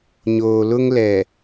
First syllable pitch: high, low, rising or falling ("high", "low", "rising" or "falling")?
low